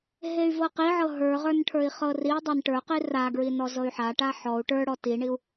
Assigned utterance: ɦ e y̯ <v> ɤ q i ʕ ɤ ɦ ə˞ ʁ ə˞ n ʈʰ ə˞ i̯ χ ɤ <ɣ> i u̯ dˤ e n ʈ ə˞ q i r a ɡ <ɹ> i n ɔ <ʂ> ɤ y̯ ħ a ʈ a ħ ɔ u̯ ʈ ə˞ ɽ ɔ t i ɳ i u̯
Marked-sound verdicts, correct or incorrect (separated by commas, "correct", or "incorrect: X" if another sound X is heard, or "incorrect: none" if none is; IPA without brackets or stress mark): correct, incorrect: r, correct, incorrect: z